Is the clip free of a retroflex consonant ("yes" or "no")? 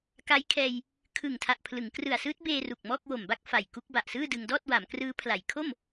yes